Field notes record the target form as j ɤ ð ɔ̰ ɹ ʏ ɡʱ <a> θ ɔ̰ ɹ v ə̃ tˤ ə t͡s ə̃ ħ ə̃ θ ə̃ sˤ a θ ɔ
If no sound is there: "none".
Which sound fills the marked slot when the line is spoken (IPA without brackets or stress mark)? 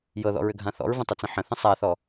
ã